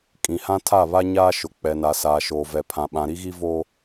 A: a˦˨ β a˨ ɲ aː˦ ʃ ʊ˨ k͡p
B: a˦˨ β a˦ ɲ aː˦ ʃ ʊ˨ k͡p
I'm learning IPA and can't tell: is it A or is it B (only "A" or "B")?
B